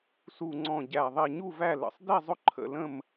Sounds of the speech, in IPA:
s u˨˩ ŋ͡ǀ ɔ̃˨˩ ɟ æ˨˩ ðˤ i˨˩ ɲ u˦˨ v æ˦˨ l ə̰˨˩ sˤ d i˦˨ zˤ ʊ˦˨ ǃʰ ə̰˦˨ l ə̃˦˨ m

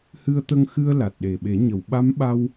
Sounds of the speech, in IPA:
h ɨ˧ ə̯ t̪ ə˧ ŋ x ɨ˧ ə̯ l a˨˩ t̚ ɗ e˨˩ ɓ e˨˩˦ ɲ ə˨˩˨ w ɓ a˧˥ m ɓ a˧ w

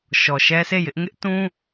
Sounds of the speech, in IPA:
ʃ ɔ˨ ʃ ɛ˦ s e˦˨ j ɪ˦ ʔ ŋ ɪ˦ ʔ t ũ˦

